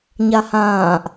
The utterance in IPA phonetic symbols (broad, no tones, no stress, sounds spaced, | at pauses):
ɲ a h ãː ʔ